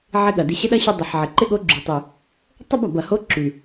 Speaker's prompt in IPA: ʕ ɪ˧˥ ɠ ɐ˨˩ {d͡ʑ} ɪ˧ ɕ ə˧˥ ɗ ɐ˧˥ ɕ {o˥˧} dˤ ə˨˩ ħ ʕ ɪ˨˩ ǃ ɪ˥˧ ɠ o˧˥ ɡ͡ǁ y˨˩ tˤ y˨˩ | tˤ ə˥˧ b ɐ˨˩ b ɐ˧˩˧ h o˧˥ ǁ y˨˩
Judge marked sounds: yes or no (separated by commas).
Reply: no, no